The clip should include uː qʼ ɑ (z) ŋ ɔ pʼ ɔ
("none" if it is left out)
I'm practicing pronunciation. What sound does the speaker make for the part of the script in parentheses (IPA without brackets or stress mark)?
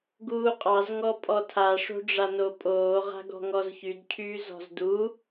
z